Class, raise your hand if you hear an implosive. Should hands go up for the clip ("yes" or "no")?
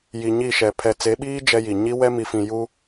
yes